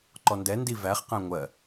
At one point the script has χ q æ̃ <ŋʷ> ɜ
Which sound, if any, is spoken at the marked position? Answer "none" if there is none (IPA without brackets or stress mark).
ŋʷ